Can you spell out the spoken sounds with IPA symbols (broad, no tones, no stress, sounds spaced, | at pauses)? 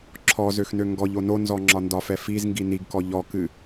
ǁʰ ɔ z ø x n ø ŋ ɡ ɔ ʎ o n o n z ɔ ŋ͡ǁ ɒ n d ɒ f ɛ f i z ŋ ɡ i n i ɡ k ɔ ʎ ɔ k ɨ